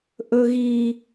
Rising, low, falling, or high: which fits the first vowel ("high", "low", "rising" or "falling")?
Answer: high